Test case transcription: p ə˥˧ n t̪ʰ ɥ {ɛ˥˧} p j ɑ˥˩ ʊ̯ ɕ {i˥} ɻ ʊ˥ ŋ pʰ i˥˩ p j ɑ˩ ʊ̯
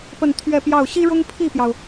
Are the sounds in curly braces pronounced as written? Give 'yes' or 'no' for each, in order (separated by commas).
yes, yes